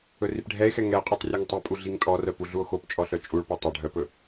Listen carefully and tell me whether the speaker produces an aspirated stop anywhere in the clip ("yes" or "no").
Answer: no